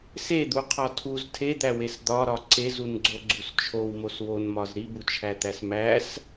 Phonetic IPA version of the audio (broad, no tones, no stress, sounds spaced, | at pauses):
s e d̪ u qʰ ɒ tʰ u z tʰ e d̪ æ w e s d̪ ɒ ɾ ɒ ǀ e z u n ɡ͡ǀ o ɡ͡ǀ u s t͡ʃʰ o w m o s w o n m ɒ z ɾ i b u t͡ʃʰ æ t̪ æ s m æ s